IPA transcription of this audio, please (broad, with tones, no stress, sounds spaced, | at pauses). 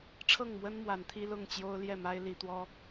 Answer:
ʈ͡ʂʰ ɤ˥˨ ŋ m w ə˦ n m w a˨˦ n t̪ʰ i˦ l ʊ˥˨ ŋ t͡ɕ j o˦ ʊ̯ l j ɛ˥˨ m a˦ ɪ̯ l i˨˦ t̪ w ɔ˦